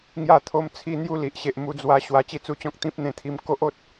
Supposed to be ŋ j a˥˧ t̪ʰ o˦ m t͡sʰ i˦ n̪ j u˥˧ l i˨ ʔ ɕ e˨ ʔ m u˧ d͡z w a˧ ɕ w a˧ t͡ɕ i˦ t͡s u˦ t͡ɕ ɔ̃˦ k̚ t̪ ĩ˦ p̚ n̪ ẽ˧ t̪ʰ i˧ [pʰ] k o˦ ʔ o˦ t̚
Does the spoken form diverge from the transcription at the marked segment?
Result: yes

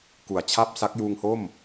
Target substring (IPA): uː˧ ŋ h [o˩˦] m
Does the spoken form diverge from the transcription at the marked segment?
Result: yes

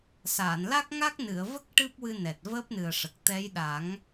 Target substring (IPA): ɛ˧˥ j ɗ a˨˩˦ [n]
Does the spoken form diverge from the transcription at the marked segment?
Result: yes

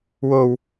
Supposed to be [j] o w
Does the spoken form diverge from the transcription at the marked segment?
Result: yes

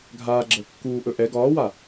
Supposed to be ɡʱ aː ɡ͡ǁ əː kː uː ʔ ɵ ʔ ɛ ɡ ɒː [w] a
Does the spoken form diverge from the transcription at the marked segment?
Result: no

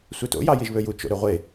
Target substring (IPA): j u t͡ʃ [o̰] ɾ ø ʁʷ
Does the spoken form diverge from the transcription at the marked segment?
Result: no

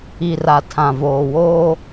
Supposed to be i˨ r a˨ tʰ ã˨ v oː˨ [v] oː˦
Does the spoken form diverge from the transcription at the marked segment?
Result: yes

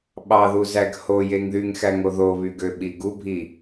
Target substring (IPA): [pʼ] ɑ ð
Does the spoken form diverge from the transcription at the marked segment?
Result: yes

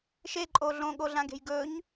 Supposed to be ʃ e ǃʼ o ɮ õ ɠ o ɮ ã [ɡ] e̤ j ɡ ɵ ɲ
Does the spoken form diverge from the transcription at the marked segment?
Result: no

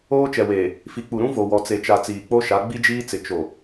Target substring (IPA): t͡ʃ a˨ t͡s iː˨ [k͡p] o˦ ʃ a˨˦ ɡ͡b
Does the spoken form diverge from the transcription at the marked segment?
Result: no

